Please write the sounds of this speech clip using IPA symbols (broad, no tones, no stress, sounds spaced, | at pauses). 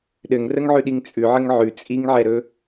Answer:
ɗ ɘ ŋ r ə ŋ ʕ ʉ ɗ i ŋ t͡sʼ ʉ ʕ ə ŋ ʕ ʉ t͡sʼ i ŋ ʕ ɛ ɾ ɵ